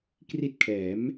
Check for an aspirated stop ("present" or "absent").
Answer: present